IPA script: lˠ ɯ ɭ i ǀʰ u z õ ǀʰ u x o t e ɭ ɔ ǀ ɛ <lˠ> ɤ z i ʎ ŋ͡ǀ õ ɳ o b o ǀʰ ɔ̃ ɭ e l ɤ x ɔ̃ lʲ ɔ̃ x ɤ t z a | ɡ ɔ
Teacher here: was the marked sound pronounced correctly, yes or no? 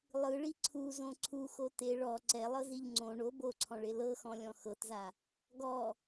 yes